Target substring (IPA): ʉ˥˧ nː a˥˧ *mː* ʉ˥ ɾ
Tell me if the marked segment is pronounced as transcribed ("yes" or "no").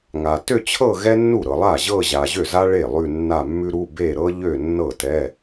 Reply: yes